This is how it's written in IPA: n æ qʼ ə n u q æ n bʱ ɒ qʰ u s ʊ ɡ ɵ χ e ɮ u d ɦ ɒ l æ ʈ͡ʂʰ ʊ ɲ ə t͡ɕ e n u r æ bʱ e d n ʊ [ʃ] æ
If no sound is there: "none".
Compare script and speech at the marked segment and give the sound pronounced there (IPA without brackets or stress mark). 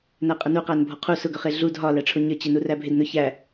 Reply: ç